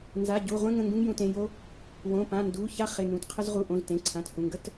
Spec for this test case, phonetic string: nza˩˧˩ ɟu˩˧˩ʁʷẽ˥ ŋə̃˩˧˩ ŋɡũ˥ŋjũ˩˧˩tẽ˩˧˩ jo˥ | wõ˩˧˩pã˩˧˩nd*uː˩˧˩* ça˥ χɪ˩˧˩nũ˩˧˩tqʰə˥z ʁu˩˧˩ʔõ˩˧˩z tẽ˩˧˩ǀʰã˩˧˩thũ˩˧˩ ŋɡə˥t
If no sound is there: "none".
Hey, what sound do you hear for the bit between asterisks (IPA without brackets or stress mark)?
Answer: u˩˧˩